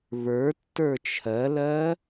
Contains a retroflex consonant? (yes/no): no